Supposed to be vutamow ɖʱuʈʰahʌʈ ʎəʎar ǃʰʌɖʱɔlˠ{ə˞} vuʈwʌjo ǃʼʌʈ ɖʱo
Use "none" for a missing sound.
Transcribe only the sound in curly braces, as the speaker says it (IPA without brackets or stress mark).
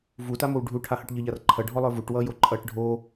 ə˞